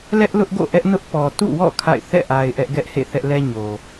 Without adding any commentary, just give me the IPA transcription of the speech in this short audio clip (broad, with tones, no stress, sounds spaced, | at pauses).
l ɛ˦ ʔ l ʊ˦ ʔ ɡ o̰˦˨ ʔ ɛ˦ ʔ n ʊ˦ ʔ p ɔ˨ t ṵ˦˨ w ɔ̰˦˨ kʰ a̰˦˨ ɪ̯ θ ɛ̰˦˨ ʔ a˨ ɪ̯ ʔ ɛ˦ ʔ ɡ ɛ˦ ʔ h ḛ˦˨ θ ɛ˦ ʔ l ɛ˦ ɲ o˨